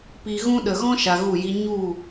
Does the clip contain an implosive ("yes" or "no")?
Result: yes